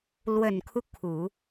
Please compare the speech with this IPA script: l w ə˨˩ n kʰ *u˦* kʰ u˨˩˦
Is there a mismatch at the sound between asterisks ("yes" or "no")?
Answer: no